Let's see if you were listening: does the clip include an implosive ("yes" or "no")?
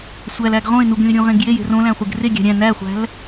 no